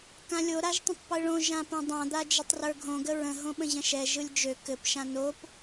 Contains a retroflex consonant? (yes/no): yes